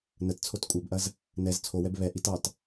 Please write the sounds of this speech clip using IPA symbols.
n ə t t͡sʰ o t kʷʼ ɐ b ʔ ɐ z | n ɛ z t͡sʰ o w ɛ b β ɛ ʔ i t ɑ t

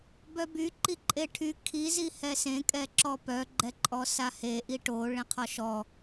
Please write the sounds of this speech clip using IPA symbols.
b œ b y ǃ i ǃʼ e ʈʰ y kʰ i z i h ɛ s ẽ kʼ ɛ ǁ ɔ p œ ɡ͡ǃ ɛ ǃʼ ɔ s a h e ʔ i ʈ o ɭ ẽ qʰ ɔ ʃ ɔ

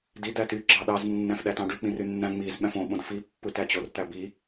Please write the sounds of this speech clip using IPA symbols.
d i d æ t y ɡ͡ǁ ɑ ɗ ɑ z nː æ̃ f ɗ æ t ɑ̃ ɖ y k͡p ĩ r y nː æ̃ ŋ͡m i z ɓ æ̃ f õ ɓ õ d f i pː ɯ t æ t͡ɕ o r t̪ æ b i

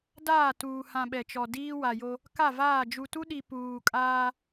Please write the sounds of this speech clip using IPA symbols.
d aː˦˨ t uː˨ h ã˨ ɓ ɛ˨ t͡ʃ ɔ˨ d iː˦ w a˨ j o˦ | k a˦˨ v aː˦˨ d͡ʒ u˨ t u˦ ɗ i˨ p uː˨ kʼ aː˦

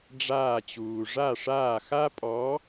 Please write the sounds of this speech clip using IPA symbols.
ɖ͡ʐ aː˦˨ t͡ɕ uː˨ ʐ a˦˨ ʂ aː˦˨ x a˥ pʼ ɔ˧˥

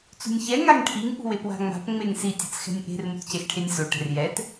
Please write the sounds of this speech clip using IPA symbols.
t͡s ṳ nʲ ç ɛ ŋ a ŋ ʈʰ i ŋ ʔ ṳ w e p w a̤ ŋ͡m a̤ p ŋ͡m e ŋ s i tʲ ɯ t͡s x ɛ̤ nʲ ʔ e̤ r m u t c e x ʈʰ e nʲ s o ʈ ɛ̤ r j ɛ t

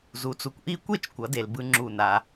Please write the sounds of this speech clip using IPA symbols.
z u˩˥ t͡s u˩ kʷ ʔ i˥˨ kʷ e˥˨ t͡ʃ kʷ ʌ˩˧ d e˩ l b ɯ˧ ŋ͡ǁ u˧˩ n a˩˧

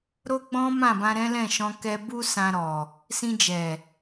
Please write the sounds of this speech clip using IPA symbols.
ɾ o˦ ɡ͡b ɔ̃˦ m ã˦˨ b ã˧ ɾ ɛ̃˦ l ɛ̃˦˨ ʃ ɔ̃˧ k ɛ˧ b u˦ s ã˧ ɾ ɔ˨ | s ĩ˧ d͡ʒ ɛ˨

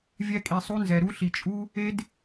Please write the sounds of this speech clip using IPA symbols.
vʲ ɛ˧ kʼ i˨ sˤ u˧ n z ɛ˨ ɾ u˦ ɬ i˧ t͡ʃʼ u˦ | e˦ d

